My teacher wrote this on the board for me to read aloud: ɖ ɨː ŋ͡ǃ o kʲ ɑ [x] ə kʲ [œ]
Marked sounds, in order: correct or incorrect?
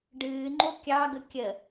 incorrect, incorrect

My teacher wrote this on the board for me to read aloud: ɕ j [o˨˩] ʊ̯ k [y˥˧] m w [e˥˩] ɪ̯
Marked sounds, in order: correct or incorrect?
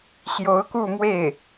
incorrect, incorrect, correct

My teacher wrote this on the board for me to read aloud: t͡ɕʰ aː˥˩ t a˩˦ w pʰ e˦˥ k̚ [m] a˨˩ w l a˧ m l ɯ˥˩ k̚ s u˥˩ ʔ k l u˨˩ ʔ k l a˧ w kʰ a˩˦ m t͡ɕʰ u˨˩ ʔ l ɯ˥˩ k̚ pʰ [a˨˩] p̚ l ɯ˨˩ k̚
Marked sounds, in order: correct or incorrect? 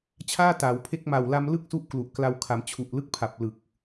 correct, correct

